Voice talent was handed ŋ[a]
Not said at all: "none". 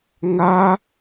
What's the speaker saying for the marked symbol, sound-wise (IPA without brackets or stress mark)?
a